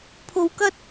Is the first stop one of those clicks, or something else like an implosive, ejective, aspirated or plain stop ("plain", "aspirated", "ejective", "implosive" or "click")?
aspirated